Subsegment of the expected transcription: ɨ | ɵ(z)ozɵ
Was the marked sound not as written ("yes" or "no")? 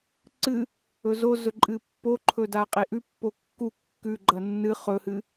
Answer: no